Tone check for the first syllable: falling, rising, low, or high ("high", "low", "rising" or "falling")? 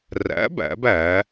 rising